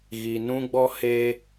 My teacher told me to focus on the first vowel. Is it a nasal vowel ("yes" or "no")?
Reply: no